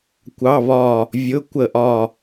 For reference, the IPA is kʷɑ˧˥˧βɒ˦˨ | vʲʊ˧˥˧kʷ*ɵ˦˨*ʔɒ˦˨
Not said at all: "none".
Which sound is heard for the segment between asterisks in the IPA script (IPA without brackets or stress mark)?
ə˦˨